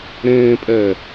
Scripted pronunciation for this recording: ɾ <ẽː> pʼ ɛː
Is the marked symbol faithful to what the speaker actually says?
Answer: yes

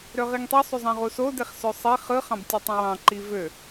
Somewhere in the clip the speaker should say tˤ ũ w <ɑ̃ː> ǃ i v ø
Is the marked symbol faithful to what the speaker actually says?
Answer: no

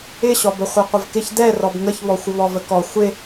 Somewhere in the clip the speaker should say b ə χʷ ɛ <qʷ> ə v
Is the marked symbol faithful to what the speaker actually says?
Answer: yes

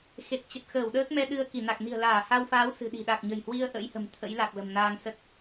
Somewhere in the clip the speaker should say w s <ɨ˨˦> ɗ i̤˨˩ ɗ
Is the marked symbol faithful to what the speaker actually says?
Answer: no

